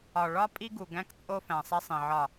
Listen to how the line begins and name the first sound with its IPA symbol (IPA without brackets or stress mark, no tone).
ɒ